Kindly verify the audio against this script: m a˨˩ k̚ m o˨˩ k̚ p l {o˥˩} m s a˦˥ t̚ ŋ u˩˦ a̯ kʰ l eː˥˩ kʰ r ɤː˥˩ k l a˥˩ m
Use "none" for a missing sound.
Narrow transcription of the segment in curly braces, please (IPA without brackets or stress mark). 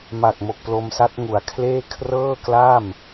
o˧